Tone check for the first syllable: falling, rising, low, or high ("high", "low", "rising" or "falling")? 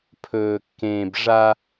low